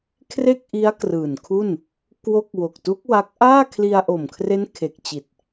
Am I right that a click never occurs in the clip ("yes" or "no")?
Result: yes